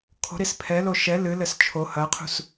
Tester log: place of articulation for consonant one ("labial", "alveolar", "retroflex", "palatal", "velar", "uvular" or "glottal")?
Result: velar